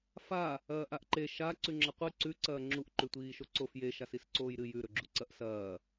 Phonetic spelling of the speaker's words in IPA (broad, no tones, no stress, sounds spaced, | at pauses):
f a | ɐː ʔ a ʔ ǃ e ʃ a ǀ ʉ ŋ͡ǁ ɐ qʷ ɨ ǀ ʉ ǀ ɐː ŋ͡ǁ u ʔ ǃ ʉ tʷ iː ʃ o ǀ o f j e ʃ a s i s ǀ oː j ɾ ɨ j ʉ ɾ ɵ ɡ͡ǁ u ǀ ɐ ʔ s ɐː